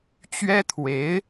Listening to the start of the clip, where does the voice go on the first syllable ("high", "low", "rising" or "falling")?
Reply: high